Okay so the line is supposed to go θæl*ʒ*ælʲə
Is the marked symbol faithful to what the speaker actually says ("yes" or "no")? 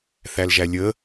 yes